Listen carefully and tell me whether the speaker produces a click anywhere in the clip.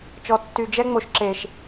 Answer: yes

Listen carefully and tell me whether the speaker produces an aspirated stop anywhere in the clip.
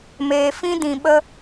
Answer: no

